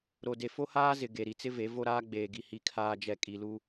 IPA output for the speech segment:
ɾ o˨ d e˨ f o˦ h aː˦ z ɪ˨ ɡ e˨ ɾ i˨ t͡s ɪ˦ v e˨˦ v o˦ ɾ aː˦ ɡ͡b eː˨ ɡ i˨ h i˨ kʰ aː˨ d͡ʒ ɛ˨ kʼ i˨ l u˦

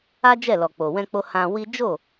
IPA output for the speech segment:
a˦ d͡ʒ ɛ˦˨ l ɔ˨ k͡p o˨ w ɛ̃˧ k͡p o˧ h ã˧ w i˦ d͡ʒ o˦˨

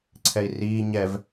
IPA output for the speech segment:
ǀʰ ɛ i̯ r iː ɲ ɛ v

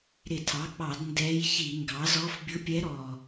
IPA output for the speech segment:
ɾ ɪ˧˩˧ tʰ ɑ˩˥ k͡p ɑ˧˩˧ d n d ɛ˧˥ j ç i˧˩˧ ŋ ɡ ɑ˩˥ z ɔ˧˥ f bʲ ʊ˧˥ pʲ ɛ˧˥ ɾ ɔ˨˩

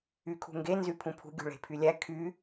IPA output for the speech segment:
y kʰ ṳ ŋ ɡ e n z y pʰ ũ pʰ ṳ ɡʲ ṳ ɭ e̤ pʰ y lʲ æ kʰ y

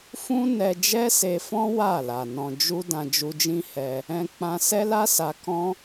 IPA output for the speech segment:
f ũ˦ n ɛ˧ d͡ʒ ɛ˦ s e˧ f ɔ̃˦ w a˦˨ l a˨ n ɔ̃˨ d͡ʒ u˧ d ã˧ d͡ʒ u˧ d͡ʒ ĩ˦ h ɛ˧ | ɛ̃˧ k͡p ã˧ s ɛ˦ l a˦ s a˧ k ɔ̃˦

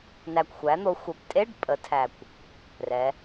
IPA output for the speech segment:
n æ˨˩ kʷ xʷ æ˩˥ n̪ o˩˥ xʷ ɜ˨˩ p tʼ e˧˥˧ ɖ pʼ ə˩˧ tʰ æ˨˩ kʷ | r ɛ˩˧

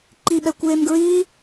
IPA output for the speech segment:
ǃ i ɓ ɛ kʷ eː m ɡ ɹ iː

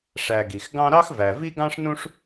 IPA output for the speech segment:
ʂ æ˨ ɡ i˩ x ɡ ɑ̃˦ ɾ ɑ˥ x v æ˩ v i˦ ɡ ɑ̃˦ ʂ n ũ˦ ʂ

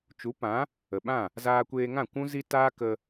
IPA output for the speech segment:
t͡ʃ u˨˦ p ã˨˦ | ə˨ ɓ ã˦˨ | z aː˧ kʷ eː˧ ŋ ã˦˨ kʷ ũ˦ z i˦ t aː˦ k ə˧

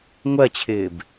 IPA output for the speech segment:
ŋʷ ɜ t͡ɕʰ ɪː b

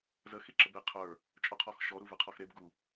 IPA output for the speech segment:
z ə x i ǁ ə b e qʰ ə˞ | t͡ʃʼ ɔ qʰ ɔ x ʃ ɔ ɾ u v e qʰ ɔ x ɾ e b ɡ u

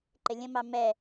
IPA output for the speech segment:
ǃ ɪ lʲ ə̃ m ɑ m ɛ

